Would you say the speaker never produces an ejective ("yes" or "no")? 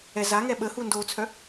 yes